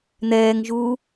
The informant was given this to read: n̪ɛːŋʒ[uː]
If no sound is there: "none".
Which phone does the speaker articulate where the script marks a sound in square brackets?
uː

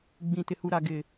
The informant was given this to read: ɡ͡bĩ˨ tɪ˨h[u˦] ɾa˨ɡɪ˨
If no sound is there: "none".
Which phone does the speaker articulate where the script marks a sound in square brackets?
u˨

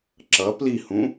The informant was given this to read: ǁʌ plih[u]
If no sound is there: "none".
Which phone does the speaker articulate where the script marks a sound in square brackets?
ũ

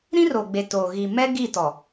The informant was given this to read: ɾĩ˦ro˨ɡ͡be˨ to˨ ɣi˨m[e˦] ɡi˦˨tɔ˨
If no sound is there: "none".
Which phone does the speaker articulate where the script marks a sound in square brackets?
ɛ˦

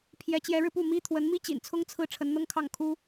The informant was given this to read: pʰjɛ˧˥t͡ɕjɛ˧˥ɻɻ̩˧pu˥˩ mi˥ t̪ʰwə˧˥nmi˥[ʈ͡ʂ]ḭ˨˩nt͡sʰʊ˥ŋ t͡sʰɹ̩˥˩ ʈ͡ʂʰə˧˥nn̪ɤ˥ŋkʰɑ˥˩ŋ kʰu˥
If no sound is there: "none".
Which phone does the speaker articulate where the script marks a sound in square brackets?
t͡ɕ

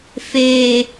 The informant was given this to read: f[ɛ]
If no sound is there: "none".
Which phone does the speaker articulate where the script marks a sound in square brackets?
e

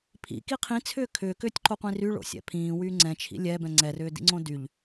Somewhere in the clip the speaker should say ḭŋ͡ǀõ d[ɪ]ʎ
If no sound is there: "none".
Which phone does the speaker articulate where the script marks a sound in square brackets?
y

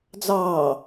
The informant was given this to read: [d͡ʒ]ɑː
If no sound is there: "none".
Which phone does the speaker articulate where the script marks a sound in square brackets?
d͡z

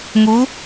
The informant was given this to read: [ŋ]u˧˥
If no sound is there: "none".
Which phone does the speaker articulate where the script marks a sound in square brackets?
ŋ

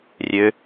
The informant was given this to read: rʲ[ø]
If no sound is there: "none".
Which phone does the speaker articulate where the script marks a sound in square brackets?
ø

